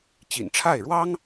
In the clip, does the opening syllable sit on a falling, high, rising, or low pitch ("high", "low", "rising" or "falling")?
low